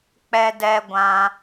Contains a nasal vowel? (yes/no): yes